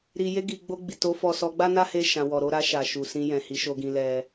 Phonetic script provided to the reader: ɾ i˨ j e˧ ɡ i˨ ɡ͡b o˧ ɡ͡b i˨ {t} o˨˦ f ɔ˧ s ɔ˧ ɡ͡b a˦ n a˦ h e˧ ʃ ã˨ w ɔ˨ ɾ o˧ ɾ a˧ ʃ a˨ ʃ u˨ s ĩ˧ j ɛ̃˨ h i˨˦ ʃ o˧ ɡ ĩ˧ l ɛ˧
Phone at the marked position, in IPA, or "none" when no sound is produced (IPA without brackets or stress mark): t